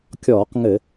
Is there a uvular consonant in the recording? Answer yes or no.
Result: yes